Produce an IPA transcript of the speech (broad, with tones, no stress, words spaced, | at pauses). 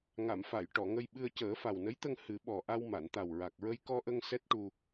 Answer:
ŋa˨˩˨mfa˨˩˨j ʈɔ˨˩˨ŋə˧j ɓɨ˧ə̯cəː˨˩˦ fa˨˩wnə˧˥jt̪ə˧ŋ hɨ˨˩˦ ɓɔ˨˩ʔa˧w ma˨˩˨nt̪a˨˩wɹa˨˩k̚ɹə˧j kɔ˧ʔə˧ŋ sɛ˦˥t̚ʈu˧